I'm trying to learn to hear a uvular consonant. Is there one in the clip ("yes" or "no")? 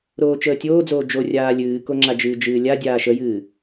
no